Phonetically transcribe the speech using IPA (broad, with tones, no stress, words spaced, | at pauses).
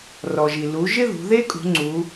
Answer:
rɔ˩ʒi˩ lu˩˧ ʒɪ˥ðṳ˩˧ðe˥kʼṳ˩˧ ŋ͡ǀu˩˧